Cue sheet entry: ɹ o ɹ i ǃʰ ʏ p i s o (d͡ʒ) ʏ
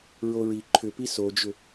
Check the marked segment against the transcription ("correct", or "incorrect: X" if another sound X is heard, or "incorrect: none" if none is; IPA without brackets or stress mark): correct